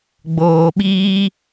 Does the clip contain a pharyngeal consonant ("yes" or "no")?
no